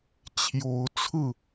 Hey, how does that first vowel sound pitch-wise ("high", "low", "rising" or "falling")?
rising